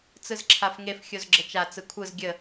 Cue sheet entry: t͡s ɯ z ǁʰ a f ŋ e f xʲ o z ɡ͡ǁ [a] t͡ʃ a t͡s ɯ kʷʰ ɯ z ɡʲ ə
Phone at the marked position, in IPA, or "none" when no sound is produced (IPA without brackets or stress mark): ə